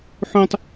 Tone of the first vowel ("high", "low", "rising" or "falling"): high